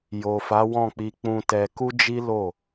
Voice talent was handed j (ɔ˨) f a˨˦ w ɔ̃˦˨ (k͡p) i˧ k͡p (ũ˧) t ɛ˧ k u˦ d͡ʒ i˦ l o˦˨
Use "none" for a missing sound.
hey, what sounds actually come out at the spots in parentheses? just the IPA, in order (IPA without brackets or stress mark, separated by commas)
o˨, k͡p, ũ˧